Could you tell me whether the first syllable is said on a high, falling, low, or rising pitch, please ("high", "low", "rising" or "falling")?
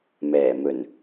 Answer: low